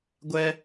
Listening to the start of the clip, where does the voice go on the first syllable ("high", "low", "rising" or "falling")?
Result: high